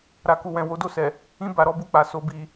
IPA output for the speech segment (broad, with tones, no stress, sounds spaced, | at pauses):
ɾ a˨ k u˨ w ɛ̃˨ w o˨˦ d o˦˨ s ɛ˨ | ĩ˧ b a˨ ɾ ɔ˧ b u˧ k͡p a˨ s o˨ b i˨